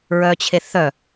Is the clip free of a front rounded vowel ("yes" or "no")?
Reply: no